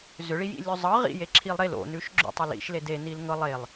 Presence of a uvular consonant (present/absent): present